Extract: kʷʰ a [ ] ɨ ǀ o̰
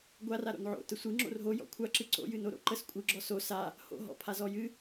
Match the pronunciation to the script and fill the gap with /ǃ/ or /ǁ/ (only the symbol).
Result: ǁ